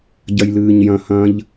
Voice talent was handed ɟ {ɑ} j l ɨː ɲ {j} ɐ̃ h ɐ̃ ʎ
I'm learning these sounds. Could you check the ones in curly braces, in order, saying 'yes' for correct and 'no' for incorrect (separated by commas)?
no, yes